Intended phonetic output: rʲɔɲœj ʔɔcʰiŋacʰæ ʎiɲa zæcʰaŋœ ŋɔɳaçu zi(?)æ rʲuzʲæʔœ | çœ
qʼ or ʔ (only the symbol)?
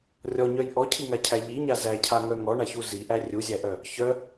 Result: ʔ